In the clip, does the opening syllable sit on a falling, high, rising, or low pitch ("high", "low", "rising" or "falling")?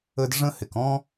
high